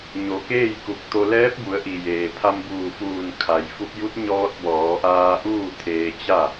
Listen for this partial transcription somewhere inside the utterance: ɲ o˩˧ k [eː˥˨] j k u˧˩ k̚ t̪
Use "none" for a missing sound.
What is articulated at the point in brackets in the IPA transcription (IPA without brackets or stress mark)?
eː˥˨